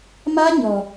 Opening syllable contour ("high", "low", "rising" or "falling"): high